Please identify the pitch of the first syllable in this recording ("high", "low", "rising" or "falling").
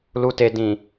low